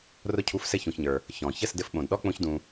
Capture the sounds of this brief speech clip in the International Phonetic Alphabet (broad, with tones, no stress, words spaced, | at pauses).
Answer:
rʊ˧cʰu˨˦fsɘ˧ çũ˧çɲə˞˧ | çɔ̃˨ çə˦˨sdɘ˧fɓõ˨dɗɔ˦ k͡põ˦çdũ˧